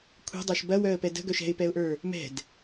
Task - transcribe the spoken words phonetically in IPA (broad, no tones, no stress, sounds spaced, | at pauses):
kʷʰ ɛ̤ dˤ ə˞ ʃ b ɐ w œ ə̯ p ɛ d ə̤ ɡ œ ʃ ɛ̤ ɪ̯ p ɛ ʊ̯ ʔ ə˞ | m ɛ̤ d